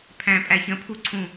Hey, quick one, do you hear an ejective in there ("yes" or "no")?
yes